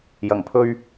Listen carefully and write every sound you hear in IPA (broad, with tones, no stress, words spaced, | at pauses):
jɐ˨˩ŋpʰɵ˧ɥ